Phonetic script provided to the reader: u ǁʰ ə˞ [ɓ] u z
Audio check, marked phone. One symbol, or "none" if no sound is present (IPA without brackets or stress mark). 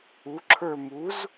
m